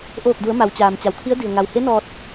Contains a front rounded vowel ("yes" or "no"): no